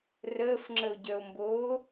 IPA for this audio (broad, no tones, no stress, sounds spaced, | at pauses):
r əː f ŋ͡ǁ ə o̯ ɟ œ o̯ m b oː